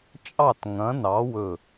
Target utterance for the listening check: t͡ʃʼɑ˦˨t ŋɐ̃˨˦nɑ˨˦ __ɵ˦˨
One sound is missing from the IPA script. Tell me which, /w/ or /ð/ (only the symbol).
w